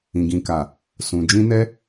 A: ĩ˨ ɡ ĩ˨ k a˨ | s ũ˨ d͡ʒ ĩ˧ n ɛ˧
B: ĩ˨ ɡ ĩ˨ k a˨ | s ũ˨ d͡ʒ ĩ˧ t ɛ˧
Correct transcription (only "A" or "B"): A